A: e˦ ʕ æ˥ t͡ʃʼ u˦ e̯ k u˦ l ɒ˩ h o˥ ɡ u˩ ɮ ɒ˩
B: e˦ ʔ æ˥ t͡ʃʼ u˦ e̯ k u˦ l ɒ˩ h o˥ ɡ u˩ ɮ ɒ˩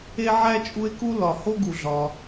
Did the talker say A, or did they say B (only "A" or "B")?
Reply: A